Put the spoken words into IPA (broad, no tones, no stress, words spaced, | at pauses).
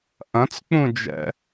ʔɐ̃t͡sk͡pũd͡ʒɛ̰